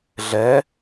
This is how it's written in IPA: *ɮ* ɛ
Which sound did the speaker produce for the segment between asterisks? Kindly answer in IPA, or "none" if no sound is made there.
ɮ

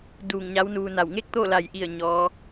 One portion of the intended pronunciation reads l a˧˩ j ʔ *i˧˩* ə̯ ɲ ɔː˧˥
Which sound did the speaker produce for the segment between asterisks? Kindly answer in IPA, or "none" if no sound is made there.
i˧˩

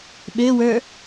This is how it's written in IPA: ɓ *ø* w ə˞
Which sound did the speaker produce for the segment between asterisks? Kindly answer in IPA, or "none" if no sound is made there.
ø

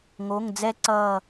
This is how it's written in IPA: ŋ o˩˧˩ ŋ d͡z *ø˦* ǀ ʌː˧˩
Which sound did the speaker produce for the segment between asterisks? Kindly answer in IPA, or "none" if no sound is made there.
ɛ˦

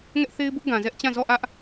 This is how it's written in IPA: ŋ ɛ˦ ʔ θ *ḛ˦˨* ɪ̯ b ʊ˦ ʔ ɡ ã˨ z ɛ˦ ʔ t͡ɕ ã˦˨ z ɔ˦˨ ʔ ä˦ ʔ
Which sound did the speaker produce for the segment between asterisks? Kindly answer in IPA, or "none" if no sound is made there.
e˦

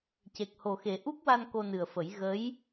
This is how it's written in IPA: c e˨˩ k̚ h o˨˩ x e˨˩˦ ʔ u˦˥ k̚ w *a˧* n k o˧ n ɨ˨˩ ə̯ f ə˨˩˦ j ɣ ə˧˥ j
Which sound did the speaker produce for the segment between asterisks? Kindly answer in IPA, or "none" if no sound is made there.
a˧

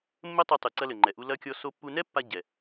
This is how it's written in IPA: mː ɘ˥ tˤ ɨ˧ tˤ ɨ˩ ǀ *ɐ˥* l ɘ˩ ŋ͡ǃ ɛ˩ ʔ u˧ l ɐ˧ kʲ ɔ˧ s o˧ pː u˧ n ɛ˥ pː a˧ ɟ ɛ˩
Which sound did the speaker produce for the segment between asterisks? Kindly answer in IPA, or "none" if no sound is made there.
ɐ˧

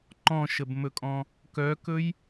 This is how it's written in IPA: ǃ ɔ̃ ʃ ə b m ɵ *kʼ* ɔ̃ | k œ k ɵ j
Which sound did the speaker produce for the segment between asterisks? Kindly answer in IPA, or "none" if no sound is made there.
kʼ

